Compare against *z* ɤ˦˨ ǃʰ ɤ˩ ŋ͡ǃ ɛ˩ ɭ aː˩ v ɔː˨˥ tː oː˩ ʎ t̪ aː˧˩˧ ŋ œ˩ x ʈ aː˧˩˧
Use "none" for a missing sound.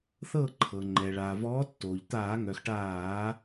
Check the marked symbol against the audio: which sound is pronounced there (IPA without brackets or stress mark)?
θ